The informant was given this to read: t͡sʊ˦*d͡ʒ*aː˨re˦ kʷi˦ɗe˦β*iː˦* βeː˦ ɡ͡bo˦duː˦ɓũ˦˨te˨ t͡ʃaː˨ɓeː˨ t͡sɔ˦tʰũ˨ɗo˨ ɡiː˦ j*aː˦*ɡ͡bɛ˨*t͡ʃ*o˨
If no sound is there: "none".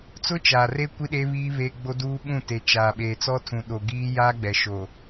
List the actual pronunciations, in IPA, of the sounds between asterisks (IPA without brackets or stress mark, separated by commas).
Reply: t͡ʃ, iː˦, aː˦, ʃ